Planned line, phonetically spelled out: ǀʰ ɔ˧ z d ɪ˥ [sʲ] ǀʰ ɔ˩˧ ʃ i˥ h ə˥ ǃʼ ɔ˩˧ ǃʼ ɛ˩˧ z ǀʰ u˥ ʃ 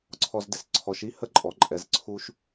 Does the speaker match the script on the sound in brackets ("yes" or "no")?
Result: no